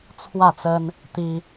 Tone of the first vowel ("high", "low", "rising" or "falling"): falling